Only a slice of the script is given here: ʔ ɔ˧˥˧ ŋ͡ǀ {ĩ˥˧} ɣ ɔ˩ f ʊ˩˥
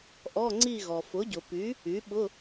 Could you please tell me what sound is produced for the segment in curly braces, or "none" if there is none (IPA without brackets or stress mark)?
i˥˧